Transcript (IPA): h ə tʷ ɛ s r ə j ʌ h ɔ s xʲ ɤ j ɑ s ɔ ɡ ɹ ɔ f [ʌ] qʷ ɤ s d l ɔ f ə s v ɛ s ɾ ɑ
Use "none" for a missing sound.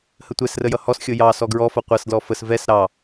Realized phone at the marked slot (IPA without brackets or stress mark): ʌ